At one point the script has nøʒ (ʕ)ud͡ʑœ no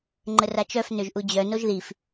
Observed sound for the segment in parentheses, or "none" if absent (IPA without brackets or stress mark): ʔ